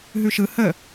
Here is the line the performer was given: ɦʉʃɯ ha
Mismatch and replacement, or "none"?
a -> ə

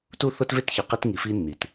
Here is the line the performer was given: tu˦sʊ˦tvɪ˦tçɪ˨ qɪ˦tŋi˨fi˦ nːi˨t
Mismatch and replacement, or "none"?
s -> θ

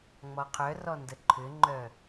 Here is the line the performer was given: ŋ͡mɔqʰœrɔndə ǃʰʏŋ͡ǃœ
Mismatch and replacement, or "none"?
none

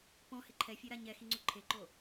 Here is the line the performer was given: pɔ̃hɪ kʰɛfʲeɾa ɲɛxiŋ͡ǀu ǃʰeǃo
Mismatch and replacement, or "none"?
kʰ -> ǃʰ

